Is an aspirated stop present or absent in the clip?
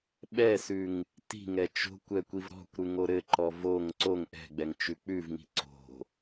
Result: absent